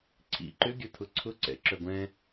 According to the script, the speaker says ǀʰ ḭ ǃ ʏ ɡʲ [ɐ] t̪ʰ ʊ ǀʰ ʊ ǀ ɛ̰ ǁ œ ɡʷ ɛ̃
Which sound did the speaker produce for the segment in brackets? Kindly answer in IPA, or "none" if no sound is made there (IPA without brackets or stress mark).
ɐ